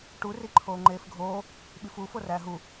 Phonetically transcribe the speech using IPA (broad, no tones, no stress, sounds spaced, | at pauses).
ʈ u r i ǃʰ oː ŋ͡ǃ eː f ɡʱ oː | ɓ i f uː f o r æː ɦ u